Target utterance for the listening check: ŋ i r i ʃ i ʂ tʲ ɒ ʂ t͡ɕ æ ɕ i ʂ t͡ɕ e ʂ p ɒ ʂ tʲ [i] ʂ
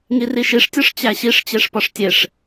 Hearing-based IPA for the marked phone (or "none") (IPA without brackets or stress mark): e